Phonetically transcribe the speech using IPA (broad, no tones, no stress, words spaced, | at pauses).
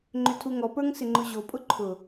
ŋ͡ǃʏtʰuŋɔpə˞ŋ sɪŋ͡ǃʊʑopʼʊ ǃʰʊ